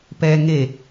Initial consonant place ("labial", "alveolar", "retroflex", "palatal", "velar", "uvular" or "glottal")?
labial